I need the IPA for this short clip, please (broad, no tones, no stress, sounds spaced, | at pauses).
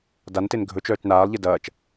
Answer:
d a n t e n ɡʱ ɵ t͡ʃ œː t͡ʃ n aː lˠ ʎ e d ɐː t͡ʃ